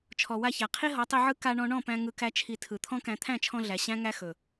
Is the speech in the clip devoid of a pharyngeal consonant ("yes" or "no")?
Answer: no